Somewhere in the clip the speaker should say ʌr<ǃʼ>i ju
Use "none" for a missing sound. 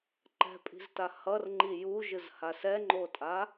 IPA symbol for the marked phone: ŋ͡ǃ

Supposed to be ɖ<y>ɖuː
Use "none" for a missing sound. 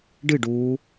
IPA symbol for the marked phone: ɨ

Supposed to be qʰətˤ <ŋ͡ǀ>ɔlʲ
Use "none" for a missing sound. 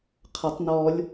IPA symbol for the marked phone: n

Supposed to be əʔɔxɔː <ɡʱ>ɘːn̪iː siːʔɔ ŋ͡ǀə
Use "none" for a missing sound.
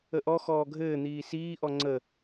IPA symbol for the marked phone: ɡʱ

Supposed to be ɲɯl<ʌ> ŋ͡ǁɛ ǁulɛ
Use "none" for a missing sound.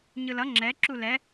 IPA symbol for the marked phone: ʌ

